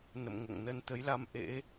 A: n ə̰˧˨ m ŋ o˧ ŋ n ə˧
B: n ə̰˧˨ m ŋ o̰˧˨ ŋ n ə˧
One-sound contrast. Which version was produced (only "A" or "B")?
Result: B